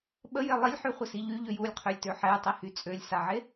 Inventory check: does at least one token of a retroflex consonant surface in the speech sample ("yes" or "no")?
no